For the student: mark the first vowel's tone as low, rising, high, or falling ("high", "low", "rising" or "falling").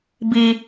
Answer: high